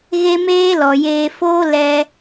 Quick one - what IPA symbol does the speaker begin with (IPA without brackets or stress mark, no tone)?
ɣ